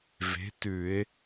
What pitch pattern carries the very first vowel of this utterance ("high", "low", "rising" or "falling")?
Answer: rising